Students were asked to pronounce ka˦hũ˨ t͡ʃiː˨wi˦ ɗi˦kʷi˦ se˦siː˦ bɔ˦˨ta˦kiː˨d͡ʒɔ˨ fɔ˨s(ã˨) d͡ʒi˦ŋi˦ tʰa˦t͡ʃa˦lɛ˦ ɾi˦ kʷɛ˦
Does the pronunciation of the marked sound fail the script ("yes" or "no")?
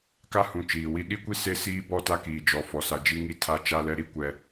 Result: yes